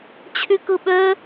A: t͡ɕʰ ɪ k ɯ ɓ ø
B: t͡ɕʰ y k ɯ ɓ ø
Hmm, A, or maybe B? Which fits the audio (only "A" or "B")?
B